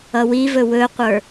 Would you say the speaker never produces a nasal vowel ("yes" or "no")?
yes